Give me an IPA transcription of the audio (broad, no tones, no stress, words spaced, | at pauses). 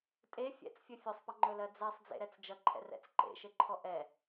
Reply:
tʼe fʲɛ̰t͡sfʲɵ fʲɵsˤpʌŋ͡ǃɵlɜ d͡zɛsˤd͡zḛɾɛt͡s d͡ʒʌǃʰɛ̰rɛ̰t͡s ǃḛʃeǃʰɔ ʔɛ